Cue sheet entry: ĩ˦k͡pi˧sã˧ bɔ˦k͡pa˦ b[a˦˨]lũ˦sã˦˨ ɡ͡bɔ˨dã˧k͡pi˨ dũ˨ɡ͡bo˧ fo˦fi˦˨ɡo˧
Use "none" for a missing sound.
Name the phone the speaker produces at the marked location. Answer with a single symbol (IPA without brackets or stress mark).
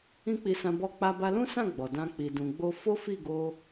a˧